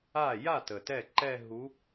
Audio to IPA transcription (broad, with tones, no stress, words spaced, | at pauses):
a˥˩ ja˥˩ tə˨tɛ˥˩ ǃɛ˥˧ɦu˧˥